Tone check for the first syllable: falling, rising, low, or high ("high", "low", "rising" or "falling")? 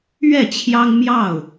falling